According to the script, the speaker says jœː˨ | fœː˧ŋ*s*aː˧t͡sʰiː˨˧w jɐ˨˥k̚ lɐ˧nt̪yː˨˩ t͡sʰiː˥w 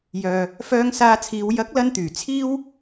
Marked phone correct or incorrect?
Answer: correct